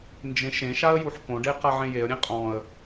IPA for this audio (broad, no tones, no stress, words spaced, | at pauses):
nd͡ʒẽʃẽʃaə̯ juħkõɖe qaʕẽjeə̯ɾʲẽ qʼɔ̃ə̯